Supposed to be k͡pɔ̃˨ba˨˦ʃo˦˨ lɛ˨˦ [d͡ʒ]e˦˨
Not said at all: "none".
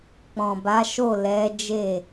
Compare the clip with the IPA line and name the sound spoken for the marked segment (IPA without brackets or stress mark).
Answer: d͡ʒ